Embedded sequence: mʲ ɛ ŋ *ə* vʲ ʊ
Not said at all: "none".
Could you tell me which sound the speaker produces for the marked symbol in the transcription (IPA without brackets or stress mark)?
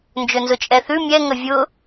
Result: ə